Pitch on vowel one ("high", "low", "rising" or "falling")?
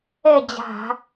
falling